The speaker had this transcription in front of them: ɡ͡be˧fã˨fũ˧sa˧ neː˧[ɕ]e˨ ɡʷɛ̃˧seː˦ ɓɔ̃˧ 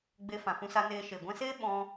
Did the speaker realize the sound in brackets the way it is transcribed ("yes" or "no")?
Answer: no